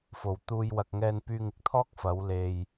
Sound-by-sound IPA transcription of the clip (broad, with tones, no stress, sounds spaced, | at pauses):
f o˨˩ w t̪ uː˧ j w ɐ˨ k̚ ŋ ɛː˧ n p yː˧ ŋ ɪ˥ k̚ t̪ʰ ɔː˥ k̚ f ɐ˨˧ w l e˨ j